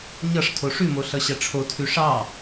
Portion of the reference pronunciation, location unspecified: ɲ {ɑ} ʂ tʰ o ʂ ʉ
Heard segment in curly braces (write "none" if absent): ʌ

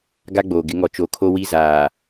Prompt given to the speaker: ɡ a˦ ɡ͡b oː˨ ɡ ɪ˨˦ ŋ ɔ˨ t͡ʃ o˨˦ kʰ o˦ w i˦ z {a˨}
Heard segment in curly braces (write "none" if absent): aː˨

